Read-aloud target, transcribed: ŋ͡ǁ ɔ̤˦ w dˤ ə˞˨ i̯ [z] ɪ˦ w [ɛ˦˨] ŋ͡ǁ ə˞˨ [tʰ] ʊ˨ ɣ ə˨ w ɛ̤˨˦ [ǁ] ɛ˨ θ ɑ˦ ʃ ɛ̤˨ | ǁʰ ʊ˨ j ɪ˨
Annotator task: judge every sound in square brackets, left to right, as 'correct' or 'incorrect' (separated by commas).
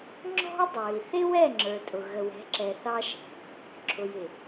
incorrect, correct, incorrect, correct